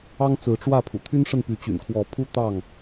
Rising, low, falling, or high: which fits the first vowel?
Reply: high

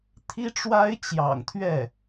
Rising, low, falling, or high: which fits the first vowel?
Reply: high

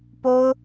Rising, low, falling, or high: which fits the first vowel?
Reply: high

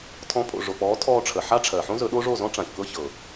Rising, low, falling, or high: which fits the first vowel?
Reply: rising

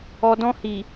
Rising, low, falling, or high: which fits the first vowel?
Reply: low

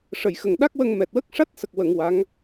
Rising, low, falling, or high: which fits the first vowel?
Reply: low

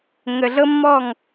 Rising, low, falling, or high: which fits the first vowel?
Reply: low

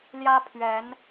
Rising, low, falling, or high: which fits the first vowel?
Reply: high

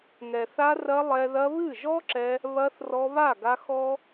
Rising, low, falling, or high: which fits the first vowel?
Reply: low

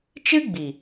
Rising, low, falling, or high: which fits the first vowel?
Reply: high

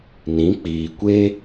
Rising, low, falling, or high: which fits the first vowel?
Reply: rising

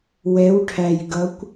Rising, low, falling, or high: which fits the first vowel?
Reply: rising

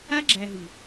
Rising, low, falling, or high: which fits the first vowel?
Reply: high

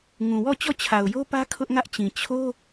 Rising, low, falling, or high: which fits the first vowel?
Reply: low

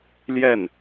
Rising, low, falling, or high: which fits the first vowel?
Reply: falling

